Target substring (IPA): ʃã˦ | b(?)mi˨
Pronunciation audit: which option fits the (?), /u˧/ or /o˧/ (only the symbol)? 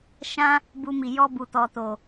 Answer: u˧